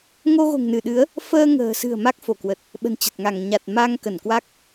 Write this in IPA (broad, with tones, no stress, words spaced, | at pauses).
ŋo˧ɣo̤˨˩ŋnɨ˧˩ɗɨ˨˦ə̯ | fəː˧ŋə̤ː˨˩sɨ̤˨˩ə̯ ma˦˥k̚fo˧˩kwə˨˩t̚ | ɓə̤˨˩nt͡ɕə˨˩t̚ŋa˧˩ŋ ɲa˨˩t̚ma˧ŋ kə˧˩n kwa˦˥k̚